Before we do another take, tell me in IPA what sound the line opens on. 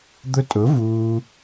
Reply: d̪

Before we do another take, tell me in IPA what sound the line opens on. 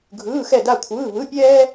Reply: ɡʱ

